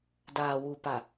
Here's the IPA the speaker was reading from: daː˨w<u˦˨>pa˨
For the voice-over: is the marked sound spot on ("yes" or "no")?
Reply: no